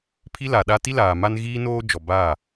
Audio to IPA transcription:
pʰ i˦ l a˨ ɗ a˦ t i˦ l aː˨ m a˦ n ɣ iː˦ n oː˦ d͡ʒ ɔ˨ b aː˦˨

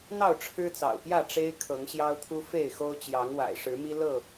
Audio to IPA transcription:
n̪ ɑ˥˨ ʊ̯ ʈ͡ʂʰ ɻ̩˦ t͡s ɑ̰˨˩ ʊ̯ p j ä˥˨ ʈ͡ʂ e˦ ɪ̯ kʰ ɤ˨˦ ŋ ɕ j ɑ˦ ʊ̯ t̪ʰ u˦ f e˥˨ ɪ̯ x o˦ ʊ̯ t͡ɕ j ɑ˨˦ ŋ w a̰˨˩ ɪ̯ ʂ ɻ̩˨˦ m i˦ l ɤ˥˨

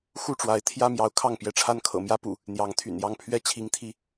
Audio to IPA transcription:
x u˥˨ ʈ͡ʂ w a˨˦ ɪ̯ t̪ʰ j ä˦ m j ɑ˨˦ ʊ̯ kʰ ɑ˥˨ ŋ p j ɛ˦ ʈ͡ʂʰ a˦ n kʰ ɤ̰˨˩ m j ä˦ p ṵ˨˩ | n̪ j ɑ˨˦ ŋ t̪ʰ y̰˨˩ n j ɑ˥˨ ŋ pʰ ɥ ɛ˥˨ t͡ɕʰ i˨˦ ŋ t̪ʰ i˨˦

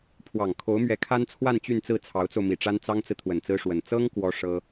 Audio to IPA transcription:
pʰ w ɑ˨˩ ŋ kʰ o˧˥ ʊ̯ m ɥ ɛ˧˥ kʰ a˥ n t͡sʰ w a˥˧ n t͡ɕ y˥˧ n t͡s ɹ̩˥˩ t͡sʰ ɑ˧˥ ʊ̯ t͡s o˧ ʊ̯ m i˨˩ ʈ͡ʂ a˥ n t͡s ɑ˥ ŋ t͡s ɹ̩˨ t̪ʰ w ə˨˩ n t͡s ɹ̩˥ ʂ w ə˨˩ n t͡s ɤ˥ ŋ k w ɔ˥ ʂ ɤ˥

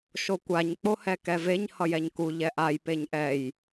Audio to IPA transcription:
ʃ o kʷ a ɲ k͡p o h ɛ k ɛ v e ɲ h ʌ j ɛ ɲ k u ʎ ɛ ʔ a j p e ɲ ʔ ɛ j

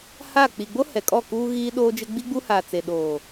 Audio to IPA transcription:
h aː˦˨ k͡p i˨ ɡ͡b o˦ h ɛ˨ kʼ ɔ˦˨ k uː˦ ɣ iː˦ ɗ oː˦ d͡ʒ ɪ˦ ɡ͡b i˦ ɡ͡b u˦ h aː˨ t͡s e˨ ɗ oː˨

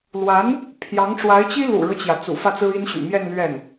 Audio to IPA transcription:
l w a˧˥ n | pʰ j ɑ˧˥ ŋ ʈ͡ʂ w a˧˥ ɪ̯ t͡ɕ i˥ l ṵ˨˩ ɻ ɤ˦ t͡ɕ j ä˩ t͡s ṵ˨˩ f ä˥˩ t͡s ɹ̩˥ i˥ n ɕ y̰˨˩ m j ɛ˥˧ n l ɥ ɛ˥˩ n

